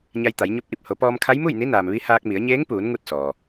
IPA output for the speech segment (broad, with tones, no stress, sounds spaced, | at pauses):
ɲ a˧ j t̪ a˩˧ j ɲ o˧˥ p̚ ʔ i˧˩ p̚ h o˩˧ p ɔː˧ m kʰ a˧˥ j m u˥˨ j n i˧˥ n aː˩ m ʋ i˧˥ h aː˧ k̚ m i˩˧ ə̯ ɲ eː˧˥ ŋ p uː˩˧ n ŋ u˥˨ t̚ s ɔː˩